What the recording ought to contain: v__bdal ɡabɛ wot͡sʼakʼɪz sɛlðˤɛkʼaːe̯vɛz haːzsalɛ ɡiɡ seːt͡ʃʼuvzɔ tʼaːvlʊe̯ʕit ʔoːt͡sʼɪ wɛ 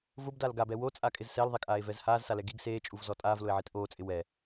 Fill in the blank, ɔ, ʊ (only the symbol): ʊ